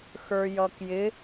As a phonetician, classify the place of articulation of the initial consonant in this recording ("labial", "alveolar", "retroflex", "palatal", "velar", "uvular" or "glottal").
velar